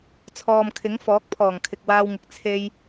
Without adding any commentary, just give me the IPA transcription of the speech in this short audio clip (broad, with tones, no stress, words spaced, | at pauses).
t͡sʰɔː˨mkʰɪ˨˥ŋ fɔː˨˥k̚pʰɔː˨˩ŋ kʰɪ˨k̚waː˧wŋɪ˨k̚ t͡sʰe˧j